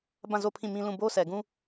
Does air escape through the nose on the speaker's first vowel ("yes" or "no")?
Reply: yes